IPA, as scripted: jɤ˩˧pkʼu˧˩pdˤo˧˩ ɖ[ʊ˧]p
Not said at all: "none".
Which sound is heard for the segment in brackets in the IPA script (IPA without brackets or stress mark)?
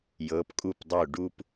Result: u˧